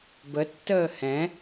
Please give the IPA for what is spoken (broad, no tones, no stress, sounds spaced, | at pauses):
b ə tː əː h ɛ̃